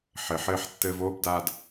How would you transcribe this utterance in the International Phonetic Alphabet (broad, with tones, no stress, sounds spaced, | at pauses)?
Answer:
ħ ɘ˨ ħ ɘː˧ ħ tː ɘː˧ v oː˧ b d a˧ d